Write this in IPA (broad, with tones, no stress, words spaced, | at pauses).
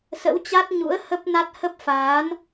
sə̰˧˥wt͡ɕa˦˥t̚ɲṵ˧˥ə̯ hə˦˥p̚na˦˥t̚ hə˦˥p̚faː˨˦n